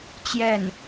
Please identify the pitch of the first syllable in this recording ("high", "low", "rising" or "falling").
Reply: falling